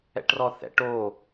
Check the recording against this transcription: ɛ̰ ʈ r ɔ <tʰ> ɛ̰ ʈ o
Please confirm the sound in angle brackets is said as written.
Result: no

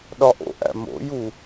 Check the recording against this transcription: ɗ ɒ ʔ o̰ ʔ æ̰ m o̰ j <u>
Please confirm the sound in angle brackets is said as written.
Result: yes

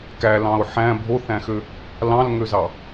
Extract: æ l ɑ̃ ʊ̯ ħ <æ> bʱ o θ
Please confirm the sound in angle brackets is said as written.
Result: no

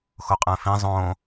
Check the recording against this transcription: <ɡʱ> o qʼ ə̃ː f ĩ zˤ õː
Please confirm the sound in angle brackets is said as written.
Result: no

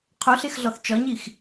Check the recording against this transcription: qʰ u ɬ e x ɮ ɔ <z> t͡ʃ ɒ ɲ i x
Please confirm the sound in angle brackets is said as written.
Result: no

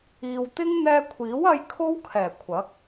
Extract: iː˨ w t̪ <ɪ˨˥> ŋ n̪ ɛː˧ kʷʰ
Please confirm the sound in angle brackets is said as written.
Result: no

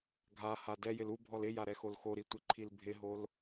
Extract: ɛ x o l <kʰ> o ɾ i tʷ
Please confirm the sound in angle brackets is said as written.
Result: no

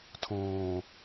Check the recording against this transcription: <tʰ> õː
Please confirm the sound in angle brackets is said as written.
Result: yes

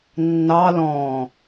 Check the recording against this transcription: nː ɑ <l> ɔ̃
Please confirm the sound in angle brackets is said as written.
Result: yes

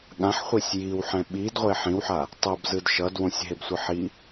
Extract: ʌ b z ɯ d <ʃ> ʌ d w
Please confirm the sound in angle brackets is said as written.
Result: yes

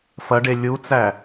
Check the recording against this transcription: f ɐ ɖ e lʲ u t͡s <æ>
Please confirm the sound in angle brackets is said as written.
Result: yes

